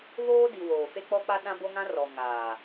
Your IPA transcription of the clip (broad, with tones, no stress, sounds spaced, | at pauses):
β oː˦ d i˨ w oː˨ f e˦ k͡p ɔ˦ k͡p a˦ ɗ ã˦ b o˦ ŋ ã˦ r ɔ˨ ŋ aː˨